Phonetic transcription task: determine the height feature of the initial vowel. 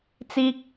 high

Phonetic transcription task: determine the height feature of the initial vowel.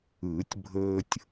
high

